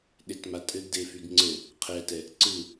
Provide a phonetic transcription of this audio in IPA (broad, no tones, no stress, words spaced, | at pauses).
ɗetmatʼɘɡ defyɡŋ͡ǀɘ | qʰɛtɛ | ǀɯ